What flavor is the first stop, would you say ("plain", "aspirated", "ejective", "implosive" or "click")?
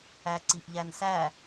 click